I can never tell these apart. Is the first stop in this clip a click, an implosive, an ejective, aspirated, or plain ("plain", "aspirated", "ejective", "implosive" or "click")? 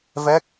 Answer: plain